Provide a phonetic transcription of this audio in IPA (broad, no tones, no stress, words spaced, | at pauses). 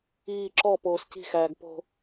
iː ǁɔ poːsci̤xæːɡ po̤